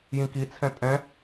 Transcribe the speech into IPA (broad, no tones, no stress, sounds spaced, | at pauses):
j ĩ k i t͡sʰ ɛ̃ tʼ ɛ̃